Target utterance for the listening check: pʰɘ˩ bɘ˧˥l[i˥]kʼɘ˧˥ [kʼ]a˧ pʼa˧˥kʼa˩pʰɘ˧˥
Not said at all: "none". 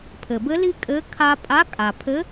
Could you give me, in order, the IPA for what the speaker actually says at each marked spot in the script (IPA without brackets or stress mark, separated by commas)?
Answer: i˥, kʰ